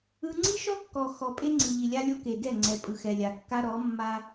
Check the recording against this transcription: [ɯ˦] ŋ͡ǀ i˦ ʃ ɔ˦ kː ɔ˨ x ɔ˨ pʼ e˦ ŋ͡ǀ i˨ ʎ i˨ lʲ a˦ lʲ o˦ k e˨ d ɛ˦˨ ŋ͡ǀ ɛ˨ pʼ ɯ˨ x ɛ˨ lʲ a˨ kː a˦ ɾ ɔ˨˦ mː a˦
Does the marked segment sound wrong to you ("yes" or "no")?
no